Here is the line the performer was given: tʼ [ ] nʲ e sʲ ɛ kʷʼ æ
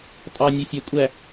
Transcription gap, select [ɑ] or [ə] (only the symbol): ɑ